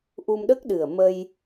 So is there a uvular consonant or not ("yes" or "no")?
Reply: no